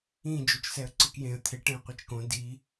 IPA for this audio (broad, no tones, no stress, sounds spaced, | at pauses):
ĩ d͡ʒ o t͡ʃ s ɛ ə̯ ǀ ɯ k j ẽ ə̯ t̪ʰ e ʈ ẽ ə̯ qʷ e t͡ʃ k õ d i